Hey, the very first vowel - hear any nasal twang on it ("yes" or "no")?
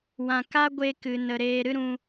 yes